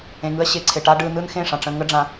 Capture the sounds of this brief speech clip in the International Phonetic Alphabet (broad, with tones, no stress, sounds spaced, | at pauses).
ẽ˨ ŋ ɯ˧ ɐ̯ ɕ e˨ ǀʰ e˨ ʈ a˦ ɖ ɯ˧ n ɯ˦ n x ẽ˦˨ ʂ ã˨ ʈ͡ʂ ə̃˧ ŋ ə˦ ɖ͡ʐ ã˧